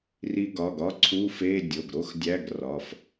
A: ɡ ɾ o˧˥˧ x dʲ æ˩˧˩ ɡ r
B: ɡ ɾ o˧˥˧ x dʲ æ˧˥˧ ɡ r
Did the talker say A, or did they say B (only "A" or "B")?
B